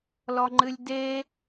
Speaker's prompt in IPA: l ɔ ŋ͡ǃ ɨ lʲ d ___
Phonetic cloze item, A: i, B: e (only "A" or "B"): B